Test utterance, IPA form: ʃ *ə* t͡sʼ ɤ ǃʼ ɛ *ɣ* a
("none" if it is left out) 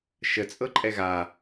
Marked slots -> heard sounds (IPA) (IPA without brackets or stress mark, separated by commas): ə, ɣ